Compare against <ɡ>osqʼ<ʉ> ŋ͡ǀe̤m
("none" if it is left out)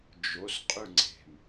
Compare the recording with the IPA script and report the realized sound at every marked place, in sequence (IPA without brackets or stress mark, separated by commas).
d͡ʒ, ʉ